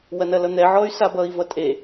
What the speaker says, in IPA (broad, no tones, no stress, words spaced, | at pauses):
wɐnɐlʌn̪ɛ ʕɔy̯sabʌi̯ vʌtʼe